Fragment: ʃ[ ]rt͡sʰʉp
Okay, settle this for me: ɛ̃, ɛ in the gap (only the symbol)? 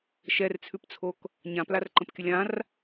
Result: ɛ